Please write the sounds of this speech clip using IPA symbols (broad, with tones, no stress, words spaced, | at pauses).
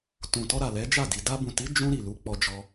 tũ˨tɔ˧ɾa˨ lɛ˨˦d͡ʒa˦˨ di˨ da˧bũ˨ti˨˦ d͡ʒũ˧ ɾi˨lu˨˦k͡pɔ˧d͡ʒɔ˧